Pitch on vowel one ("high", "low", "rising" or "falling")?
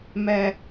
high